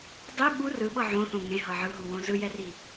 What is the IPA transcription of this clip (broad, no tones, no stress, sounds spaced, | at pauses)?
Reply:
dˤ i ɓ u r ɯ ɓ ɤ ʕ õ θ õ ŋ ẽ ɦ ɤ ʕ ɯ ɦ u w õ z ɯ j ɛ r i